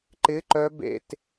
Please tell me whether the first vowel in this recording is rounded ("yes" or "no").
no